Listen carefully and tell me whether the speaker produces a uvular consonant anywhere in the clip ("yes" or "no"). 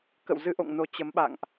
no